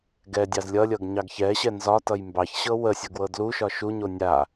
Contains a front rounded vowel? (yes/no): no